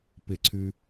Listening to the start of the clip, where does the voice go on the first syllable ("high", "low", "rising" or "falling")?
falling